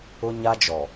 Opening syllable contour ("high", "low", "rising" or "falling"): high